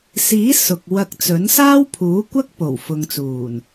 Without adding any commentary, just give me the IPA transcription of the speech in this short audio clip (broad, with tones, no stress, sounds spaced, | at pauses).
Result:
s iː˨˥ s ʊ˨ k̚ w ɐ˧ k̚ t͡s ɵ˨˥ n s aː˥ w pʰ uː˨˥ kʷ ɐ˥ k̚ p o˨˩ w f ʊ˨ ŋ t͡s uː˨˩ n